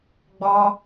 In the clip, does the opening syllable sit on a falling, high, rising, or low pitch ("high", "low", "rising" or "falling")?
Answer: high